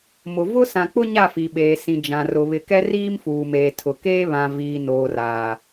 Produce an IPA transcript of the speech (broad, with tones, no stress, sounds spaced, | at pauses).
m ʊ˨ v ʊ˦ s ã˨ k͡p ʊ˦ ɲ a˦˨ f i˨ ɓ eː˨ s ĩ˨ d͡ʒ ã˨ r ʊ˨ β ɪ˨ k ɛ˦ r iː˦ m f uː˨ m eː˨ tʰ ʊ˨ k eː˦ β ã˨ v iː˨ n oː˨ r aː˨